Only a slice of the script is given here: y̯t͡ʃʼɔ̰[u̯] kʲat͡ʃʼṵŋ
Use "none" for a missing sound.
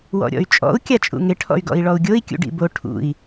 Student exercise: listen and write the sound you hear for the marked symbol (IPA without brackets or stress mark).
u̯